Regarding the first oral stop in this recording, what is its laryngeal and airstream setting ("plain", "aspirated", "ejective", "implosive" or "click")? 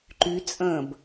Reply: click